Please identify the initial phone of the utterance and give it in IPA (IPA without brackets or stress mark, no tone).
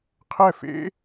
qʰ